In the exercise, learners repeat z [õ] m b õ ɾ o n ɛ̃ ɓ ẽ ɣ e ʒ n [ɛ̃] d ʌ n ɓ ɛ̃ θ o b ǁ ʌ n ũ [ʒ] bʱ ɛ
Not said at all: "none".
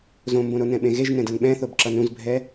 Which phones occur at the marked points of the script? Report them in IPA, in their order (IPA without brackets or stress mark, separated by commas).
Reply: õ, ɛ̃, z